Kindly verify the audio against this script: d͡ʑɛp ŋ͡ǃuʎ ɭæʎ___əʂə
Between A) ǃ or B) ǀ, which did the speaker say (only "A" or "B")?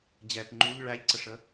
B